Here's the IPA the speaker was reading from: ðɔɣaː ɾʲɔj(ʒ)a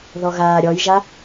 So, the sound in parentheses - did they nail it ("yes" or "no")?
yes